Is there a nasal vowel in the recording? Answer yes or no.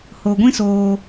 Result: yes